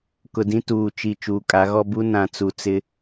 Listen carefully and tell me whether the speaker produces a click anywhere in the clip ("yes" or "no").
no